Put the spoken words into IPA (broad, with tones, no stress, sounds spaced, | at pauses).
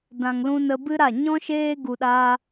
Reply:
d ã˨ ŋ l ũ˧ n ə˧ b ɨ˦ ɾ a˦˨ ɲ ɔ̃˦ ʃ eː˦ ɡ u˧ ɗ aː˦